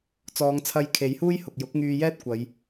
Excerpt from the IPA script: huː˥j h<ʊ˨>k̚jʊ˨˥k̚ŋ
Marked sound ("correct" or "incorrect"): correct